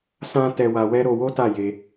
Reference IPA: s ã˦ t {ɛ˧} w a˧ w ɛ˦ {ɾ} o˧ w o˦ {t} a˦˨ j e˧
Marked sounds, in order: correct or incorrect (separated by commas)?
correct, correct, correct